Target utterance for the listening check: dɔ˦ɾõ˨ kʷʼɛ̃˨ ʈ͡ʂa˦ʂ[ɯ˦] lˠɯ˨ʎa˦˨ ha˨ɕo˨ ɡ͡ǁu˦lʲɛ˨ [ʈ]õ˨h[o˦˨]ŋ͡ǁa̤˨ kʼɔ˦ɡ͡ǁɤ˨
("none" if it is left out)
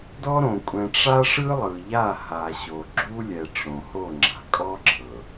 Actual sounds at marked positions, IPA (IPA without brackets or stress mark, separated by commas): ɯ˦, ʈ͡ʂ, o˦˨